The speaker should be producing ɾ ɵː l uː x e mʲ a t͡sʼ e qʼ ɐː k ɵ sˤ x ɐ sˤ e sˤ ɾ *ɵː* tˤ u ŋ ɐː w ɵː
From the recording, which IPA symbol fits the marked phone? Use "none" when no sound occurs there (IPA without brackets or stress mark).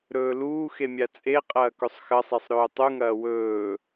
ɵː